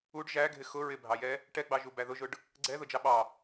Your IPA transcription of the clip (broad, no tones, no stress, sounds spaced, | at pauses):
u ɖ ʒ æ ɡʱ ɪ x ʊ ɹ ɪ bʱ ɑ j ɛ | ʈ ɛ ɡ͡b ɑ ʒ u b æ ð ʊ ʒ ʊ ɖ | ɡ͡ǀ ɛ ð ʊ d͡ʒ ɑ ɓ ɑ